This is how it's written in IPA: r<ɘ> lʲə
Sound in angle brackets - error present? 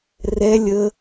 yes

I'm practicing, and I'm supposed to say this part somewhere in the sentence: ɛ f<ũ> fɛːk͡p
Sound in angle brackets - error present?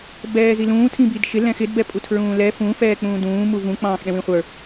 no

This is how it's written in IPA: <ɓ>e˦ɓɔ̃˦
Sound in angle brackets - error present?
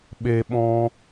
no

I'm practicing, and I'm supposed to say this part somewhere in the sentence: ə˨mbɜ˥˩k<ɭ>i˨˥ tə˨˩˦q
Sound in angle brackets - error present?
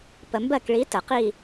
no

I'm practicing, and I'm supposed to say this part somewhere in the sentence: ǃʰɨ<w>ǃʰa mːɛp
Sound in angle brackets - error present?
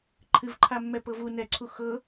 yes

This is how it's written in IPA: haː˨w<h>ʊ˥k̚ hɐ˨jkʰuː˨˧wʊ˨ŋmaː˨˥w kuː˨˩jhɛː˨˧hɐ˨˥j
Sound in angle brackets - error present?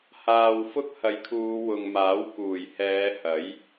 yes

